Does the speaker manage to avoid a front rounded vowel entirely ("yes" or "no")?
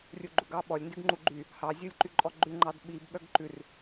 no